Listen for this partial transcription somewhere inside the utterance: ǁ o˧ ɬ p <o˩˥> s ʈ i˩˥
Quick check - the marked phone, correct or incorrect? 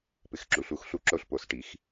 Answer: correct